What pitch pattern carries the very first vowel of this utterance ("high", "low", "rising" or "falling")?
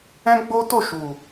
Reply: high